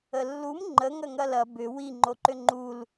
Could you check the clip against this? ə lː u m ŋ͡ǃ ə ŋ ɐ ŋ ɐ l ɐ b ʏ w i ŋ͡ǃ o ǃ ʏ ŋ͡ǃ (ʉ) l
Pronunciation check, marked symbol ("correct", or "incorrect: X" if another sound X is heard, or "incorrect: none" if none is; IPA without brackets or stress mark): incorrect: u